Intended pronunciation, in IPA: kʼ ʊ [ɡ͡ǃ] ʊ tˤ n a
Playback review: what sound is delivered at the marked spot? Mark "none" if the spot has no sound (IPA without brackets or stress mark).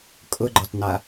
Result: ɡ͡ǃ